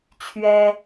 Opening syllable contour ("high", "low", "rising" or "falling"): high